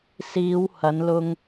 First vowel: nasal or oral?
oral